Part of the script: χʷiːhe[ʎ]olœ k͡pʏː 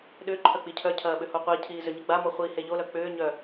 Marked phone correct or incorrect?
correct